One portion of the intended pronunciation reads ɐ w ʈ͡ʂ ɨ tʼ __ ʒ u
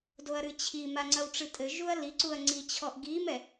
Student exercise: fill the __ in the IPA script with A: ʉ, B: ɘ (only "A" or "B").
B